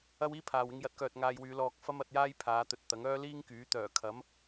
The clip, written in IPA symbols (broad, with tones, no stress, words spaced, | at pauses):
ɐ˥wiː˥pʰaː˨w ɪ˧ŋjɐ˨˥t̚kœː˨t̚ ŋaː˧jwyː˨˧ lɔː˨k̚ fɐ˥mɐ˨˥t̚jaː˥j pʰaː˨˧t̪ɵ˨t̚ t̪ɐ˨˥ŋœː˥liː˥ŋkyː˨˥ t̪œː˨˩ kʰɐ˨˥m